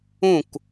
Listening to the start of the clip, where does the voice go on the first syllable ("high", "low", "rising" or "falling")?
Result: falling